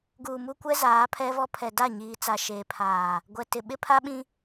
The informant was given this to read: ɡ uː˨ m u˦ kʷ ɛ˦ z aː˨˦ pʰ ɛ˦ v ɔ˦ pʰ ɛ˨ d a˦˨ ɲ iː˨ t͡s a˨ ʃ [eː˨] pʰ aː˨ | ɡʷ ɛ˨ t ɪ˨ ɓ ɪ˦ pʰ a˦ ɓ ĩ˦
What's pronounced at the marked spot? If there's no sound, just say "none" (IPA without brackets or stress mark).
eː˨